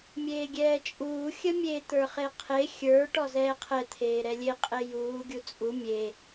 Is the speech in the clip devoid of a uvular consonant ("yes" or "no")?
no